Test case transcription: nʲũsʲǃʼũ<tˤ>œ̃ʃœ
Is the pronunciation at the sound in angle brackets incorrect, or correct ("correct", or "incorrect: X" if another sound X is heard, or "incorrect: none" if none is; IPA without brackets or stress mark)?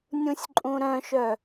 incorrect: ɾ